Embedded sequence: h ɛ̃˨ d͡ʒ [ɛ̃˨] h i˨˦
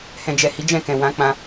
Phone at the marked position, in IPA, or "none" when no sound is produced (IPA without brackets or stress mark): ɛ˨